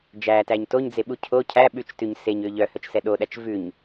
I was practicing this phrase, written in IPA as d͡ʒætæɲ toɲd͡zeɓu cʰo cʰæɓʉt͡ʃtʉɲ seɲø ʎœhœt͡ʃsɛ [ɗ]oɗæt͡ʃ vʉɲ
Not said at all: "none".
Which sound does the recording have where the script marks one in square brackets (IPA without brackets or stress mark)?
ɗ